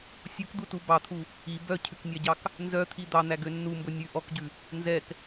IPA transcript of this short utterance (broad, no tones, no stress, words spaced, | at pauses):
sʲukd̪utu bɑt̪ʰu | i bœcʰʉknʲɑɟɑk | nzœt̪ʰi d̪ɑn̪æɡø nːumbɵ nʲʉ ʔɔkɟʉ | nzɛk